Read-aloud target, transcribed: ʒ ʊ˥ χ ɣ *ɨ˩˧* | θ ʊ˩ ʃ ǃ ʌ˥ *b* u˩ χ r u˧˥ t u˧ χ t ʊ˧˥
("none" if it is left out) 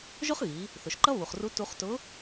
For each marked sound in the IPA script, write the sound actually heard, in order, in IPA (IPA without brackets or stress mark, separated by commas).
i˩˧, β